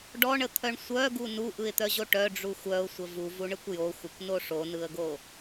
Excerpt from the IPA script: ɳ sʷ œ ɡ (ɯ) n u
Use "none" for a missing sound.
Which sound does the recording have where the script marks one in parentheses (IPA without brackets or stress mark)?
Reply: u